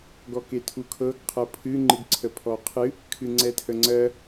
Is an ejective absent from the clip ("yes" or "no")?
yes